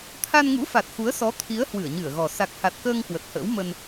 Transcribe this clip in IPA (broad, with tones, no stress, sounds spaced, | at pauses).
t̪ʰ a˧ n ŋ ṵ˧˥ f a˨˩ t̚ x u˨˦ ə̯ s ɔ˨˦ t̪ʰ i˨˦ ə̯ h w ɨ˧˩ ə̯ ɲ ɨ˧˩ ə̯ ɣ ɔ˨˩ s a˨˩ k̚ h a˨˩ t̚ k əː˧ ŋ k w ə˨˩ t̚ h ə̰ː˧˥ w m ə˧ n